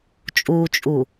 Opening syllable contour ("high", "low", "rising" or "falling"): low